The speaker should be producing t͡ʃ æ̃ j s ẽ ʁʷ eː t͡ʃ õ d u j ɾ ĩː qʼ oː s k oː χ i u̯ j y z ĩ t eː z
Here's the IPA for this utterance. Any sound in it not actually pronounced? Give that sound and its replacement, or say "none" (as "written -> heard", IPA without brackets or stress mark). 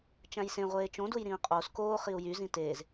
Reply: none